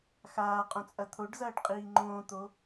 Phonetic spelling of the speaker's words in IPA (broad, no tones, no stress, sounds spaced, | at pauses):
x aː qʼ õ t͡sʼ ɐ t̪ʰ o ɖ z ɐː ɖ qʼ iː ŋ͡ǃ õː t̪ o